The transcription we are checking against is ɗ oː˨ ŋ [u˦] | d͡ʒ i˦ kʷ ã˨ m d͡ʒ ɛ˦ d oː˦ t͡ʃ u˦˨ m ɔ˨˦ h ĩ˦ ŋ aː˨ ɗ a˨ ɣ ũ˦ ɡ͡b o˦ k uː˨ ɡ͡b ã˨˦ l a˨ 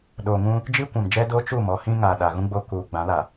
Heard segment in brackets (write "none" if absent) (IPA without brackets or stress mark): ũ˦